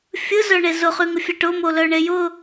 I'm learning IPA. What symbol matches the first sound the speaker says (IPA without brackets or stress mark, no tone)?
fʲ